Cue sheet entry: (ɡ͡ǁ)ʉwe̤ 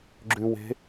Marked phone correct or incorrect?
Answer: correct